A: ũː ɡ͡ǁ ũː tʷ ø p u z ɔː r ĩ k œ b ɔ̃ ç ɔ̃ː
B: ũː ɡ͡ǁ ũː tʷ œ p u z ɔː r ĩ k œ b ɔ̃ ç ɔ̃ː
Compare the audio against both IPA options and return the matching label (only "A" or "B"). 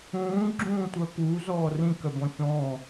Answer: B